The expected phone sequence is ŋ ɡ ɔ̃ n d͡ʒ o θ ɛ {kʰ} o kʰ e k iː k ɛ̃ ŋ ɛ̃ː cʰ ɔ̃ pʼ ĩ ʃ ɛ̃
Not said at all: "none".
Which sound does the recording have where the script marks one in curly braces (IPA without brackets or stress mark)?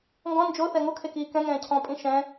ŋ